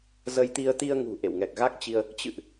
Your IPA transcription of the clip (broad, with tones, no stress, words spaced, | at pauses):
zə˧jt̪i˧ə̯ t̪i˧ə̯ŋṳ˨˩ ʔḛ˧˨wŋɛ˨˩k̚ɣa˦˥k̚t͡ɕi˧ə̯ | t͡ɕɨ̰˧˨ʔ